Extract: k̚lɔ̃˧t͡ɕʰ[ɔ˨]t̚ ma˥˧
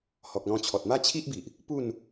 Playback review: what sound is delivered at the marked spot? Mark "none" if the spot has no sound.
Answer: ɔ˨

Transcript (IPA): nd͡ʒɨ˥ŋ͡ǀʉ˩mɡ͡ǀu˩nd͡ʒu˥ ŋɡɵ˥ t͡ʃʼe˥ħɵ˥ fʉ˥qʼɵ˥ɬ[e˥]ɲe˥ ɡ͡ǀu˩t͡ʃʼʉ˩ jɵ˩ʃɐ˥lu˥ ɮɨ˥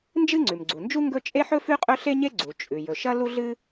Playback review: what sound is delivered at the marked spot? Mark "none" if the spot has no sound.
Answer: e˥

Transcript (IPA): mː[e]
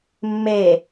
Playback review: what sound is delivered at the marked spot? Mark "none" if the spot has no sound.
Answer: e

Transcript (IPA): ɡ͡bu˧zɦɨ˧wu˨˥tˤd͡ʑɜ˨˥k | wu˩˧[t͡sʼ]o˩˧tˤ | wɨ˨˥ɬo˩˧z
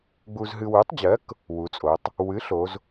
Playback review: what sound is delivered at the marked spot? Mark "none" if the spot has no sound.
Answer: t͡sʼ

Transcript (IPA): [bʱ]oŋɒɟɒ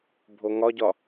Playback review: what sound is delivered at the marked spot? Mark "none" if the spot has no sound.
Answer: bʱ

